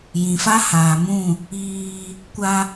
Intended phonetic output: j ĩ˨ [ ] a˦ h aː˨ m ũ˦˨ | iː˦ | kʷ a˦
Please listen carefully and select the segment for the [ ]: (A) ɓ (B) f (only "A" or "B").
B